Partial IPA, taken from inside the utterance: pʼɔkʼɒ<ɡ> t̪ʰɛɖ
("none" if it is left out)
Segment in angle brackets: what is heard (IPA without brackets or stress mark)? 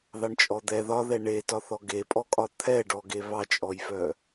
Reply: none